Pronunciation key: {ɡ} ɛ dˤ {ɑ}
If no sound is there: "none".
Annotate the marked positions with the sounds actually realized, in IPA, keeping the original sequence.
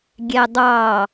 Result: ɡʲ, ɑ

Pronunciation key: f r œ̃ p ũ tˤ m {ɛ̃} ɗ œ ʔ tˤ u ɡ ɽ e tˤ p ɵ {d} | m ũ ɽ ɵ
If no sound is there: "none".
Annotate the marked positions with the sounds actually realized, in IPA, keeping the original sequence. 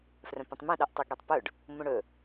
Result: ɛ̃, ɖ

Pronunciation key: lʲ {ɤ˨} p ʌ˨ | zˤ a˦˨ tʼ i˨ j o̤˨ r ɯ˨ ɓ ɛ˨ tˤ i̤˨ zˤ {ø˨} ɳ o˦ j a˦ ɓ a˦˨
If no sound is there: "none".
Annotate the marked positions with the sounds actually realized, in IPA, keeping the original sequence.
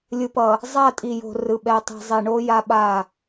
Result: ɯ˨, e˨

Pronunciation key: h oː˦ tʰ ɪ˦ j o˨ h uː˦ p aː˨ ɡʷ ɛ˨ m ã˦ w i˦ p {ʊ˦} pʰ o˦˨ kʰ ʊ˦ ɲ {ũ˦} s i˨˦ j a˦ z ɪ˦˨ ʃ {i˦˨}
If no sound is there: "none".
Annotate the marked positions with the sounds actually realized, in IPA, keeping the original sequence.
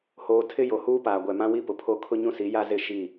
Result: ʊ˨, ũ˦, i˦˨

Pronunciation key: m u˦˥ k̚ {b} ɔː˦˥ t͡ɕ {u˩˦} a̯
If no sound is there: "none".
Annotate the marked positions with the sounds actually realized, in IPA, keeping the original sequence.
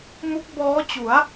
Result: b, u˩˦

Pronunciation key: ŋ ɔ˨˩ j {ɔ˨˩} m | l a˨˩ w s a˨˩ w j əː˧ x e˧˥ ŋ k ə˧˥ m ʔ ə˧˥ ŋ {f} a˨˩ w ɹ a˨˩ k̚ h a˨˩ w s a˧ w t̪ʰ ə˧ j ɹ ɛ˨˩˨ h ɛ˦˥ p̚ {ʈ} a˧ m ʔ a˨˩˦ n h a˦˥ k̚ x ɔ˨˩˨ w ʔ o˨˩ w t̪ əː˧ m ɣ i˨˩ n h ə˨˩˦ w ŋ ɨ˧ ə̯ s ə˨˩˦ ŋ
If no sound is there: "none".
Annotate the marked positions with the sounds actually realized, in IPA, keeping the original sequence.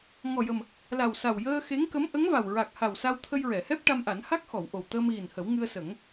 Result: ə˨˩, v, ʈ

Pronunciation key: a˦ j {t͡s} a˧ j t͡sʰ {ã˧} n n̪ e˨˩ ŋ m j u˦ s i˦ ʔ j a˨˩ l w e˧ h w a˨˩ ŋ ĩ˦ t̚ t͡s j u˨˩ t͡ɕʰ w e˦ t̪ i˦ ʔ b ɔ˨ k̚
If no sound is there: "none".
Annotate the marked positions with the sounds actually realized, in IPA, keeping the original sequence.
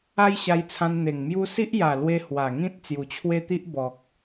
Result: ɕ, ã˧

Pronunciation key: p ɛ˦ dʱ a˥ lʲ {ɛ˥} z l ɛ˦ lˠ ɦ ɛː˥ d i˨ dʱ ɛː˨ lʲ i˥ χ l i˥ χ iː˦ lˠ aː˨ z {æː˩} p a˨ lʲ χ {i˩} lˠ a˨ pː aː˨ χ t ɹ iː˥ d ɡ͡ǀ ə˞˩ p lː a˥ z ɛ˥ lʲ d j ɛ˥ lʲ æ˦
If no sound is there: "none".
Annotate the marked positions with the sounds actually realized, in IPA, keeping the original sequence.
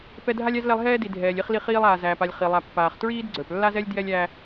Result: æ˥, æː˩, i˩

